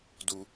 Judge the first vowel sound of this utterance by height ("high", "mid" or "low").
high